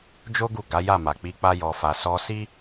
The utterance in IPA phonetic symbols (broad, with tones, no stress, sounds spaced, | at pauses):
d͡ʒ o˦ ɡ u˦˨ ɡ a˨˦ j a˦˨ m a˨ k͡p i˧ k͡p a˦ j ɔ˧ f a˧ s ɔ˧ s i˦